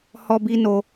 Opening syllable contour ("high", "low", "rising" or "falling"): high